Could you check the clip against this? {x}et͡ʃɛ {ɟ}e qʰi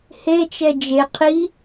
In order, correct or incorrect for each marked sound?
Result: incorrect, incorrect

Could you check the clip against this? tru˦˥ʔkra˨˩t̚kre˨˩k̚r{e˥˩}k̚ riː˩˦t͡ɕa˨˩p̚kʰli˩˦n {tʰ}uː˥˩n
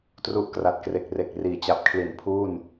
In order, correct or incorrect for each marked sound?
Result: incorrect, incorrect

